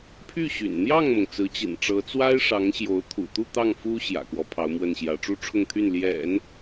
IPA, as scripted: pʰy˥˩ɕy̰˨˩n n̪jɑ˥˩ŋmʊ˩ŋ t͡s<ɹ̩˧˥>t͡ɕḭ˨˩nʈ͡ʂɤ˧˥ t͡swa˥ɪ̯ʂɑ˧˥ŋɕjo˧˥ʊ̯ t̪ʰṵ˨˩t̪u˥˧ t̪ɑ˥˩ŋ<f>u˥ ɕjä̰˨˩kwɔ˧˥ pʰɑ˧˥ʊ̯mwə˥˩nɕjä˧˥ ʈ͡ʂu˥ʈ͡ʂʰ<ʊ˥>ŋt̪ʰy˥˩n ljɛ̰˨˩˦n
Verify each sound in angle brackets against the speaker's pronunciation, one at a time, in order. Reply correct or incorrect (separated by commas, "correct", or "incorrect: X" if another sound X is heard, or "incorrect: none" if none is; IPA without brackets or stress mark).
correct, correct, incorrect: ʊ˥˧